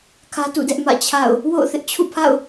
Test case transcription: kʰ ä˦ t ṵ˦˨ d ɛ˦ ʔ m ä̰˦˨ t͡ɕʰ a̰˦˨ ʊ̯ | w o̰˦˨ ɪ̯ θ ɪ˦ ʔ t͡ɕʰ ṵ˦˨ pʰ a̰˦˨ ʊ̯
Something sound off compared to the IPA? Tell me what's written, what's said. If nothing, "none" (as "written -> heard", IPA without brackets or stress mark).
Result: ɪ̯ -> ʊ̯